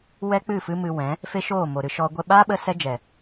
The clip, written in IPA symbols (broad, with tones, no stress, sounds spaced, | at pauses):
w ɛ˦ k͡p ɨ˦˨ f ɨ˦ m ɨ˧ w ɛ̃˨˦ | f e˦ ʃ oː˦˨ m o˨ ɾ ɨ˧ ʃ ɔ˦ ɡʷ ɛ˧ ɓ aː˦ ɓ ə˦ s ɛ˦ d͡ʒ ɛ˨